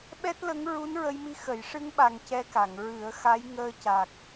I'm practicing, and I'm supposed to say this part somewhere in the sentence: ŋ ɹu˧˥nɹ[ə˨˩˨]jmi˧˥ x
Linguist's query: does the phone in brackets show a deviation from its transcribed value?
yes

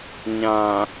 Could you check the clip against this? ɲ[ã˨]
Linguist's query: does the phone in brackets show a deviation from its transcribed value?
no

